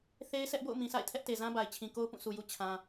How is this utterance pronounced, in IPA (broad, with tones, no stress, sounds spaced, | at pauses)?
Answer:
θ e˦ ɪ̯ sʰ ɛ˦ ʔ b o̰˦˨ ʊ̯ m ĩ˨ sʰ a̰˦˨ ɪ̯ tʰ ɛ˦ ʔ t e˨ z ã˦ b a˨ ɪ̯ t͡ɕʰ ĩ˨ k o˦ ʊ̯ p ũ˦˨ sʰ u˨ j u˦ t͡ɕʰ ã˦